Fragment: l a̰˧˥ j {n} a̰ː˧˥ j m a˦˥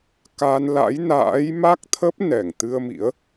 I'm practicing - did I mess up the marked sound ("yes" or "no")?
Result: no